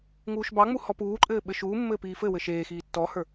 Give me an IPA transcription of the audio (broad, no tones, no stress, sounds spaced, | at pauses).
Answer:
ŋ uː ʃ b ɑ ŋ͡m u h ɔ p uː ǃʼ ɘː ɓ ɘ ʃ uː mː ɘ p iː f ɘ w ɘ ʃ eː x iː tː ɔ h ə˞